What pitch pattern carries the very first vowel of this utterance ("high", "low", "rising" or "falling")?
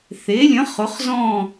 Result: rising